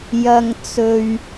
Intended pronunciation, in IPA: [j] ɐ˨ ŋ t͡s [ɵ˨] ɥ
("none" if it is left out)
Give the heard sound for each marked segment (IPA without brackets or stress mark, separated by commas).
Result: j, ɵ˨